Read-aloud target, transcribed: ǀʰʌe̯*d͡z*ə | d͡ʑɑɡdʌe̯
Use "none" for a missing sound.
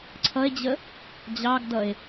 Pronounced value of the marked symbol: d͡ʑ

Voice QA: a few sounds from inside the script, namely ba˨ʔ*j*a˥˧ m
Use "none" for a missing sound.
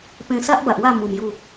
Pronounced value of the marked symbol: w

